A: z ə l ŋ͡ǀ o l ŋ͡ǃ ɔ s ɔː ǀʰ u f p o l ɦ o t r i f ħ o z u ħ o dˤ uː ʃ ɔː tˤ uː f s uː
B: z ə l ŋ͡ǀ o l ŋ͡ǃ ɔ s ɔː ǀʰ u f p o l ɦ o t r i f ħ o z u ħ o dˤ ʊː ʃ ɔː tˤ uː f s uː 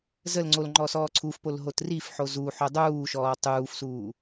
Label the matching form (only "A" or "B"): A